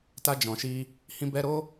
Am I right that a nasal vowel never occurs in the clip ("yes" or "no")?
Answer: no